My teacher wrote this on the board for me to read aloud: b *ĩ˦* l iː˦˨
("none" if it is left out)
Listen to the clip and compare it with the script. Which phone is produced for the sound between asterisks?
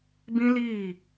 ĩ˦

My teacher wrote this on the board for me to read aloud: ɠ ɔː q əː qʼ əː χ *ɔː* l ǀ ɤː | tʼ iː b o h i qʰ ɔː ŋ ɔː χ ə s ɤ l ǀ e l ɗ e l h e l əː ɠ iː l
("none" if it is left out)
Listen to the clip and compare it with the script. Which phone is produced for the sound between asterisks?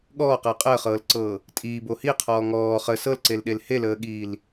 ɤː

